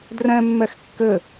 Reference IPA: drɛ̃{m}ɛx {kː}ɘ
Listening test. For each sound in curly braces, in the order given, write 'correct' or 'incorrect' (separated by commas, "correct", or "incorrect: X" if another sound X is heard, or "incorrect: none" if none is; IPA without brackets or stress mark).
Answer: incorrect: mː, correct